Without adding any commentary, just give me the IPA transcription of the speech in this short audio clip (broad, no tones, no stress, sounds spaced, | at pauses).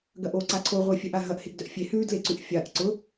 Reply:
ɡ ɐ ʔ o ǀ a ǀʰ o ʁʷ e fʲ œ ʔ a ɦ ɐ ʔ h e ɡ d œ ʔ fʲ e h ʉ d l e ǀ ʉ ʔ fʲ a ʔ ǀ ʊ